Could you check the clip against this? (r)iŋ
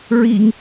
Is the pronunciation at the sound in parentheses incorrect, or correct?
incorrect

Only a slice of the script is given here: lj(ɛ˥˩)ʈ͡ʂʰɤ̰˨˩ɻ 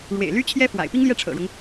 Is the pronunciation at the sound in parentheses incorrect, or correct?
correct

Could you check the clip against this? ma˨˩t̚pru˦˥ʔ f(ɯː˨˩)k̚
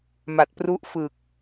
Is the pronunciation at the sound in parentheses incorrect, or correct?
correct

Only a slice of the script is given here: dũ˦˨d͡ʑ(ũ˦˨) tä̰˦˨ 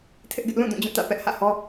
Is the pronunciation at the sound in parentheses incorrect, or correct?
correct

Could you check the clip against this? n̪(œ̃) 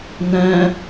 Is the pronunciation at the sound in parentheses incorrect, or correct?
correct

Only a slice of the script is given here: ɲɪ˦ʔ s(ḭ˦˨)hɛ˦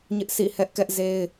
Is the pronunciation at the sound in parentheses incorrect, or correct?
correct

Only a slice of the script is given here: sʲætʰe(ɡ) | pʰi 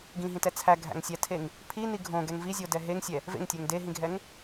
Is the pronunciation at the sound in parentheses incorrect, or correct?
incorrect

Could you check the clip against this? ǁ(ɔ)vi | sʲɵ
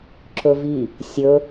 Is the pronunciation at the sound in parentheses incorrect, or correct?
incorrect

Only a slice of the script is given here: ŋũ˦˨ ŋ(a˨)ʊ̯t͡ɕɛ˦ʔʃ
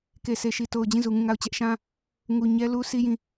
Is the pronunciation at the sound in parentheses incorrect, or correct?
incorrect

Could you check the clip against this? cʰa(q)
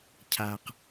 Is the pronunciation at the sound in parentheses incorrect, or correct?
correct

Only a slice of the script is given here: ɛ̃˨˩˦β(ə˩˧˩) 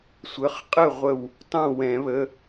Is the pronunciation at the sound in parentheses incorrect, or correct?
correct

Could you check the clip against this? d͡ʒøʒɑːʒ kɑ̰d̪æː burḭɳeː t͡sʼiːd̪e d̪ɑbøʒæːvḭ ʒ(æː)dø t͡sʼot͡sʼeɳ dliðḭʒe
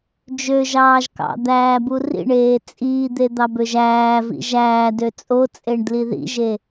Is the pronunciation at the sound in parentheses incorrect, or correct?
correct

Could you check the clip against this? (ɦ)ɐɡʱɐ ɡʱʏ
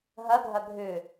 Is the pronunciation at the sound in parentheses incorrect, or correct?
correct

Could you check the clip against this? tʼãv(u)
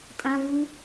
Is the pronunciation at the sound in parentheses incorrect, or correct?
correct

